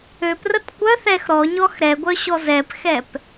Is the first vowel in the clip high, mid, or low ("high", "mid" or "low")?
mid